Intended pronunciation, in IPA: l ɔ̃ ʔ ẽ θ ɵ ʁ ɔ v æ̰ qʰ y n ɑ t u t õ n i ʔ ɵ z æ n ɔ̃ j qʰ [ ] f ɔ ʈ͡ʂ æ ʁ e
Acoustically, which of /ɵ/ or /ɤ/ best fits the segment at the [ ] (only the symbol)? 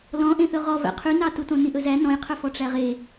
ɵ